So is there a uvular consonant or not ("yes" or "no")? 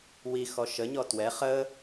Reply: yes